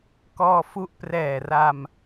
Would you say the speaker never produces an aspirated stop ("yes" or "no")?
yes